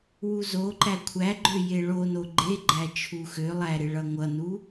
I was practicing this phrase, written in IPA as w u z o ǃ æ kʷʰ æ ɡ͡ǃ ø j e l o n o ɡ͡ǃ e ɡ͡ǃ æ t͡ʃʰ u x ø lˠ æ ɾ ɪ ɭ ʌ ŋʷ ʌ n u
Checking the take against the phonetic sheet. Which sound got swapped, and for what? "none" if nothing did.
l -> ɭ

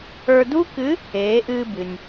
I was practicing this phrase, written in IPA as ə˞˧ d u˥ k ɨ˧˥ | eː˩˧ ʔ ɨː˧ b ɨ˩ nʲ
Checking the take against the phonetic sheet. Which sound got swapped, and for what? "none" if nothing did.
none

